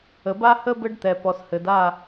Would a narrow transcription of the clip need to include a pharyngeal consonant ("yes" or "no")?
no